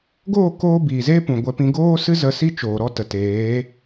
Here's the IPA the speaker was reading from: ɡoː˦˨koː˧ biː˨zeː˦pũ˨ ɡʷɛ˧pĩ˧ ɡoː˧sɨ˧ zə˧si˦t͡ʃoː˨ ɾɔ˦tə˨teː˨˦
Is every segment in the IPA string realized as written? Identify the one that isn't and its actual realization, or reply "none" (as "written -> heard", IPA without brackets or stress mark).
none